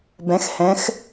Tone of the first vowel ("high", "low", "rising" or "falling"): rising